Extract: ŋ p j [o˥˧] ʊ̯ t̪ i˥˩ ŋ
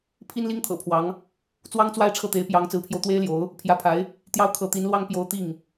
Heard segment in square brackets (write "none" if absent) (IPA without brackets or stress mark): o˥˧